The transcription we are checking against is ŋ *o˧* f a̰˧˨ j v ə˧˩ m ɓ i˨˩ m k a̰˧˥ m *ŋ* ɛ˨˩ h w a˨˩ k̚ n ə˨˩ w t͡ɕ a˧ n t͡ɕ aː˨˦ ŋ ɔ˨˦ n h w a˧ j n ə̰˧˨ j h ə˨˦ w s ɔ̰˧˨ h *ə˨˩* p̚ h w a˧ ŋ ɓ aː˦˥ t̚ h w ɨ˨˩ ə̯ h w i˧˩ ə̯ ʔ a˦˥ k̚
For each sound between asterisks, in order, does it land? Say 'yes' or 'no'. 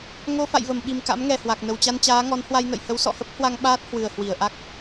yes, yes, no

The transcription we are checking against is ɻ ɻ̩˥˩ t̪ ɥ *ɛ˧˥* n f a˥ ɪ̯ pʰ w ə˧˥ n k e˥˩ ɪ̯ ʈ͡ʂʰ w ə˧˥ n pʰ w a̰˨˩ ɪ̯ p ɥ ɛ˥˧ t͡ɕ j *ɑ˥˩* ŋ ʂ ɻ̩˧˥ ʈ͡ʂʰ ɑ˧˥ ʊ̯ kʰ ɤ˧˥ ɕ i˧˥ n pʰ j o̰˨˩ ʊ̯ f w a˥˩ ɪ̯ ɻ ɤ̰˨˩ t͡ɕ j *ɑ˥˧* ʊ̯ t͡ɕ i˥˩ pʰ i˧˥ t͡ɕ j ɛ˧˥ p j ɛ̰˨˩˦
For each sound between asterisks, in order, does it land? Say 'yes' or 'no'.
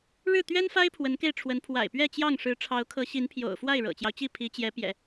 no, yes, no

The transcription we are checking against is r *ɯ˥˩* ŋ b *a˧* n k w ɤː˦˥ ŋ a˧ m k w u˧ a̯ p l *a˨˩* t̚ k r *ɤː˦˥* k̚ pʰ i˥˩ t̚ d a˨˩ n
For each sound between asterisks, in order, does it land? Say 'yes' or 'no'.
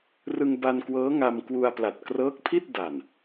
no, yes, yes, yes

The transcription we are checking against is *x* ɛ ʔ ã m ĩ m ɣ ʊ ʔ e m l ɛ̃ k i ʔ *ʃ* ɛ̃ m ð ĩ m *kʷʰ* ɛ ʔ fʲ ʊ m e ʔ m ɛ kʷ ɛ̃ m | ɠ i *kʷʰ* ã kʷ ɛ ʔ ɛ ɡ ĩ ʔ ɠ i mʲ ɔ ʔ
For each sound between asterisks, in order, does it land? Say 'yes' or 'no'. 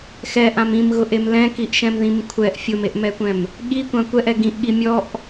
yes, yes, yes, no

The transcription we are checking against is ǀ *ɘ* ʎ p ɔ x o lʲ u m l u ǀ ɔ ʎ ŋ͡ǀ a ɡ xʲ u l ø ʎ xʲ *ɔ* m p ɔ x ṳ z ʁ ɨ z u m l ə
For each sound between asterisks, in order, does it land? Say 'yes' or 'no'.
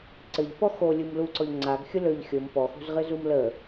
yes, no

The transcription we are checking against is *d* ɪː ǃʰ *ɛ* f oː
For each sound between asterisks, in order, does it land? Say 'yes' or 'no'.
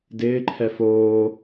yes, yes

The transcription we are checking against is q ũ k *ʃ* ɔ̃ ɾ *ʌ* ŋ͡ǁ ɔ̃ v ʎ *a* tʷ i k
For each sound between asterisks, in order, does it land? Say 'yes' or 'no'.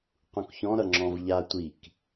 no, yes, yes

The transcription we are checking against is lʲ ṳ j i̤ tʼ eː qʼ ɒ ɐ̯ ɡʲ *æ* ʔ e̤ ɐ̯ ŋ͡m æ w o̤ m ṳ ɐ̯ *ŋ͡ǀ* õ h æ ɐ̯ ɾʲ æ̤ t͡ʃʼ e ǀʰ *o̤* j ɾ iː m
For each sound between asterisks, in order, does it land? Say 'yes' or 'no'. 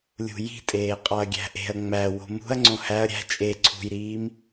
no, yes, no

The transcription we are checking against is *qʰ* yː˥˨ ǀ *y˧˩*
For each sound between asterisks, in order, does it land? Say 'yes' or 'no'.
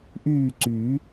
no, no

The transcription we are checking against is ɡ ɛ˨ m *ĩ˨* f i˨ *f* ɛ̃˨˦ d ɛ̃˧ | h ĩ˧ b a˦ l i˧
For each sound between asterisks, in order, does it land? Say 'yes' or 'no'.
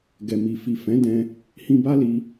no, yes

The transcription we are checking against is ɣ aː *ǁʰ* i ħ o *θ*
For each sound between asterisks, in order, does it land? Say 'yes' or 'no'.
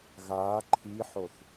no, yes

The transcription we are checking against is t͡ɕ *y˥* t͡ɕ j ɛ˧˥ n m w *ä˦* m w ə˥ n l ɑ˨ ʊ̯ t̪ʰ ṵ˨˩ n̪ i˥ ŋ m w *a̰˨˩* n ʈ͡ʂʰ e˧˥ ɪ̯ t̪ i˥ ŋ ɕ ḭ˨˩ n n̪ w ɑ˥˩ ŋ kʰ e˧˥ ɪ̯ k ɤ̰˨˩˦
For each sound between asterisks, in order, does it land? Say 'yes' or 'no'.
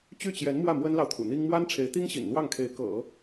no, no, no

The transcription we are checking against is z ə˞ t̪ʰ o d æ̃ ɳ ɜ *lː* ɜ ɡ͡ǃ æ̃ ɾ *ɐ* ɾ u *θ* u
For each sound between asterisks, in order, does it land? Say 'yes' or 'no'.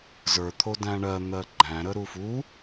no, no, no

